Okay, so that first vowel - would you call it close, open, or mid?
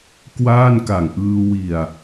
open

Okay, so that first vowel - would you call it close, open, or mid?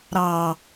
open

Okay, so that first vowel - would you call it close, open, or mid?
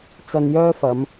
open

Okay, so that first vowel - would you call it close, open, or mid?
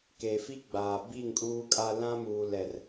mid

